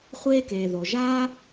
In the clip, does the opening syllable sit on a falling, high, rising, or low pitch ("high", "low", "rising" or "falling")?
high